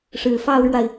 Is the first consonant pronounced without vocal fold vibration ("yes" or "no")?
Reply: yes